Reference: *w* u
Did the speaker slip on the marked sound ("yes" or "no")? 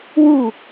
no